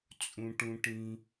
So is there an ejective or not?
yes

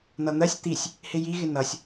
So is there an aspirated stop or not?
no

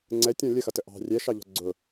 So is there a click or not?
yes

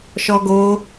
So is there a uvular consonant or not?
no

